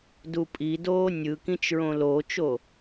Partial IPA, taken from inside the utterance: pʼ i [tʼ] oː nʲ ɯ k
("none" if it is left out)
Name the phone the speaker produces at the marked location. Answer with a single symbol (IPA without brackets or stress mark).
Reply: d